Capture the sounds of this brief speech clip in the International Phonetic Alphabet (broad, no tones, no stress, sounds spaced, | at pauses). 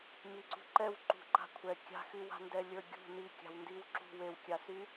m i ǀ ṳ ǃ ɛ w ǃ ṳ ǃ a̤ kʷʰ ɛ kʲ a̤ x y w a̤ n d ɛ lʲ ə˞ ɡʲ ṳ n i kʲ a̤ w n d i w ǁ ṳ w e w kʲ a s y